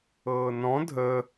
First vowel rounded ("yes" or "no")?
no